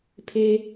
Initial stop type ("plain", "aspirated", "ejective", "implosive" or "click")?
aspirated